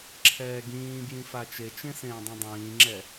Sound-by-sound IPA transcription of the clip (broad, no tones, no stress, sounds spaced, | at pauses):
ǁʰ ɛː ɡ ĩː b j ĩ f a t͡ʃ e t͡ʃ ẽ s ẽː dˤ ũ dˤ ĩː ŋ͡ǁ ɛ